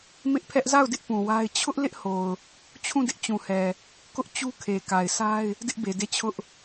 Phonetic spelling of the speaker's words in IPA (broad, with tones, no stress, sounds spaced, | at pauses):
m ɪ˦ ʔ pʰ ɛ˦ ʔ z a˦˨ ʊ̯ d ɪ˦ ʔ p ũ˨ w a˦ ɪ̯ t͡ɕʰ ʊ˦ ʔ l ɪ˦ ʔ h o˨ ʊ̯ | t͡ɕʰ ũ˦˨ d ɪ˦ ʔ t͡ɕ ũ˨ h ɛ˨ | k ʊ˦ ʔ t͡ɕ u˦ kʰ e˨ k a˨ ɪ̯ sʰ a˦ ɪ̯ | d ɪ˦ ʔ b e˨ d e˦˨ t͡ɕʰ ʊ˦ ʔ